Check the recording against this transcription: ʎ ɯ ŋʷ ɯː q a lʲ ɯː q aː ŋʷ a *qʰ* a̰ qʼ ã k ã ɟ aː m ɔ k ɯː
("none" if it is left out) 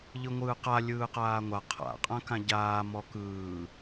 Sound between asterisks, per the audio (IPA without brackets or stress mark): qʰ